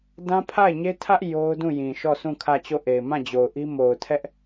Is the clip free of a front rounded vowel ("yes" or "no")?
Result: yes